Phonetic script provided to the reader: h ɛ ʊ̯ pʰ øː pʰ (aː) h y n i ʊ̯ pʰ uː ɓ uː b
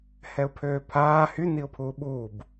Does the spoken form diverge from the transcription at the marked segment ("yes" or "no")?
no